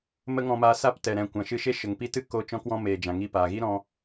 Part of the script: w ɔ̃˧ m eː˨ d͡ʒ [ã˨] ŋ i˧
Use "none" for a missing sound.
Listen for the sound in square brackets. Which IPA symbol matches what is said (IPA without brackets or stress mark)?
ã˨